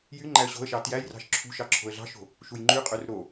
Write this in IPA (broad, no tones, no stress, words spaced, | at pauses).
jy ŋ͡ǃæə̯ɕo̤ə̯ʃɑ tjæjrɑ̤ʃ ǁʰṳʃɑ ǁʰo̤ə̯ɮɑ̤ʃo̤ | ʃujŋ͡ǃyqʼør ɾo